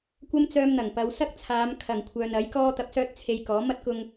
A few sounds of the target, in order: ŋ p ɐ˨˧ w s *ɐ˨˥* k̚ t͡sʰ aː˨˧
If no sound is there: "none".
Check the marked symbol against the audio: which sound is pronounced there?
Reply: ɐ˥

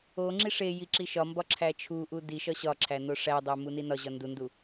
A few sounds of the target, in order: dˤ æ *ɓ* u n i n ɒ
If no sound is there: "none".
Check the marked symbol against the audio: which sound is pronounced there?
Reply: m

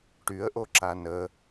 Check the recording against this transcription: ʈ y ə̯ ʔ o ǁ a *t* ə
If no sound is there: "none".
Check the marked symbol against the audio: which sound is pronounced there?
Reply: n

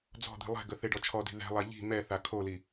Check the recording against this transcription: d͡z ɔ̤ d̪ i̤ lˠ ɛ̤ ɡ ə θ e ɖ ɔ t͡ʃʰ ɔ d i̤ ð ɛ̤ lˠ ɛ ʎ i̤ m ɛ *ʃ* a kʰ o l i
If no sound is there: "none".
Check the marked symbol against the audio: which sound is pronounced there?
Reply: θ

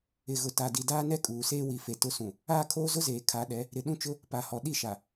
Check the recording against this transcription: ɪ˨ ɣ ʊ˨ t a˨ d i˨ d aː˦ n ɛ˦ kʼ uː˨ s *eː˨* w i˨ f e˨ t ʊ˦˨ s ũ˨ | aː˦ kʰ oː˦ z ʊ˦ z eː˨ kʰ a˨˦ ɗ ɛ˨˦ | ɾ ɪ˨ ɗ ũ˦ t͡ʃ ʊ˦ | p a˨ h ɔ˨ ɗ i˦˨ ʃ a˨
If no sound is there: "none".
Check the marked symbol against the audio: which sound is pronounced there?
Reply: eː˦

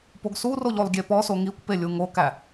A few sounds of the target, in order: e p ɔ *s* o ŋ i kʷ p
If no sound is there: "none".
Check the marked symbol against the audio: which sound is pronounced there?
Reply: s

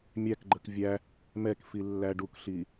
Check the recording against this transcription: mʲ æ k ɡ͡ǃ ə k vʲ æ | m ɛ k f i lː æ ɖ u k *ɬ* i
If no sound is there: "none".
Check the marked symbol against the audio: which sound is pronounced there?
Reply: ɬ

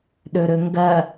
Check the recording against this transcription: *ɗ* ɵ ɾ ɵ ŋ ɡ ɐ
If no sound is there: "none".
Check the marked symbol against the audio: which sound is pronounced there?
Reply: ɗ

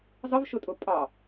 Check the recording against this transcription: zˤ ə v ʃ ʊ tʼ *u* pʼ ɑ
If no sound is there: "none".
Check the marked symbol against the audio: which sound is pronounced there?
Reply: ʊ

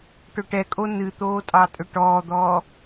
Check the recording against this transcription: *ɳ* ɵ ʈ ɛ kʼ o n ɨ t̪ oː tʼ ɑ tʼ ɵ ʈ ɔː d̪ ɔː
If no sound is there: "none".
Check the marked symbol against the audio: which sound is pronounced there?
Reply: ʈ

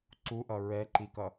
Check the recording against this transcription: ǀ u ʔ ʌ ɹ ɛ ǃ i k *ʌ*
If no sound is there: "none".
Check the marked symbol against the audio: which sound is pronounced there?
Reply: ʌ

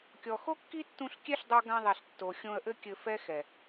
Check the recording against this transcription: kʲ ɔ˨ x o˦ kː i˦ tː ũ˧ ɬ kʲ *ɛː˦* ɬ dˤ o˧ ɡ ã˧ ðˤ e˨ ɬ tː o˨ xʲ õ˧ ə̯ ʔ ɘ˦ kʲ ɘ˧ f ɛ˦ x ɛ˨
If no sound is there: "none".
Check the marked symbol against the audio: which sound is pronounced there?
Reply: ɛ˦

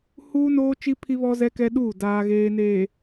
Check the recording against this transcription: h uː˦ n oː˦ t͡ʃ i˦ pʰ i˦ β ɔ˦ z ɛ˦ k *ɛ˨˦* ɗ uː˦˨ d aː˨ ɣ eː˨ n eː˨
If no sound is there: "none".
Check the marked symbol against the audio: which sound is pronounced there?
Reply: ɛ˦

